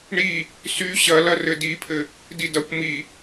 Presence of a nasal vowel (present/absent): absent